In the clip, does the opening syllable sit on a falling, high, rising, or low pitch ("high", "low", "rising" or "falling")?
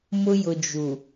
high